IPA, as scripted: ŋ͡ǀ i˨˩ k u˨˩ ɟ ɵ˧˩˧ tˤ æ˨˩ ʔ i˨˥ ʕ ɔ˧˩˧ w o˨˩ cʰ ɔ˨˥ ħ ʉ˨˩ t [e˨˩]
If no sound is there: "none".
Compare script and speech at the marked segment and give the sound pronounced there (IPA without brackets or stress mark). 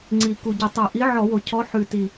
i˨˩